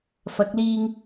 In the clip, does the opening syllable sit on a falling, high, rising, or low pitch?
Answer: rising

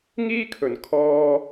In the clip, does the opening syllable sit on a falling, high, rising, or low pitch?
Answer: high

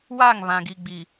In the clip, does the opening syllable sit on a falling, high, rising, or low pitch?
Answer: falling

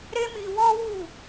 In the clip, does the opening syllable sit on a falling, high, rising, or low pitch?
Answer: high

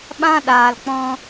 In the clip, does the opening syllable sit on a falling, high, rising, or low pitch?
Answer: high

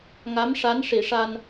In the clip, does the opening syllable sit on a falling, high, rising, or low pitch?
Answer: rising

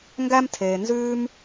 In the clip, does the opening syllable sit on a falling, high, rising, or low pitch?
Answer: high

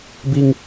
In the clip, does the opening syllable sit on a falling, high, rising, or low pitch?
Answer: high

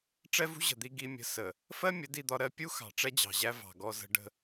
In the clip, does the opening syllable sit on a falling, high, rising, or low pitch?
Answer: high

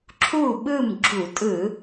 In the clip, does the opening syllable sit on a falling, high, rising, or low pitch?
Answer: falling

